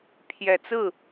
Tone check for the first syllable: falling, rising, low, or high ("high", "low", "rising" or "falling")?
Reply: low